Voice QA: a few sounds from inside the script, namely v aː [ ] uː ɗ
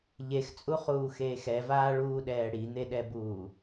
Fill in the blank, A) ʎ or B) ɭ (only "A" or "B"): B